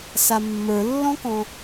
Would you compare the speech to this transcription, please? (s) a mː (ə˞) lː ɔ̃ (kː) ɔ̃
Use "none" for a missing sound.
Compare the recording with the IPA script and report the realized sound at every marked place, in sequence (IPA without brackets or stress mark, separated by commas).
s, ə˞, k